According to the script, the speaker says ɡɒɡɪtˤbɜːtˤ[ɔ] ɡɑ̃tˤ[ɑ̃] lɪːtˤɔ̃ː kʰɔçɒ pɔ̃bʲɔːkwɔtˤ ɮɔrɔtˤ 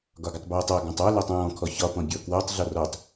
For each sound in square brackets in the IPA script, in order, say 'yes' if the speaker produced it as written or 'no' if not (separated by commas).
no, no